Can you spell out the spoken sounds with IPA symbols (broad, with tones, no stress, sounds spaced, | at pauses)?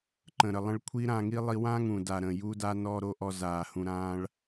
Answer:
ǃ ə̃˨ ɾ ə˨ lˠ ə̃˧ ɭ kʷʰ i˦ ɾ ã˧ ŋ i˦ lˠ i˧ w ã˦ ŋ ũ˨ d a˨ ɾ ə̃˨ j u˦ d a˦ n ɔ˦˨ ɾ o˦ ʔ ɔ˧ z aː˨ h ũ˧ ɾ ãː˦ ɭ